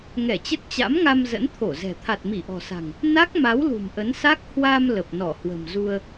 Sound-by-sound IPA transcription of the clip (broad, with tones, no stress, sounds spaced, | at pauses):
ŋ ɛ˧˩ t͡ɕ ə˦˥ t̚ t͡ɕ a̰˧˥ m ŋ a˧ m z ə̰˧˥ n t̪ʰ o˧˩ z ɛ̤˨˩ t̪ʰ a˨˩ t̚ m i˧˩ ʔ ɔ̤˨˩ s a̤˨˩ ŋ | n a˦˥ k̚ m a˨˦ w l ṳ˨˩ m ʔ ə˨˦ n s a˦˥ k̚ h w a˧ m l ə˨˩ p̚ n ɔ˧˩ h w ə̤˨˩ m z u˧ ə̯